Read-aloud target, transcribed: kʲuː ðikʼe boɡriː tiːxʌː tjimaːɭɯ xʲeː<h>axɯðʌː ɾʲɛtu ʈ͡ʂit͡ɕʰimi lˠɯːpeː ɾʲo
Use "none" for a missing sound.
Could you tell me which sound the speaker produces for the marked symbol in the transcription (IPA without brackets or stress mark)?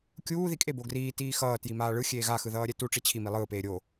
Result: ɣ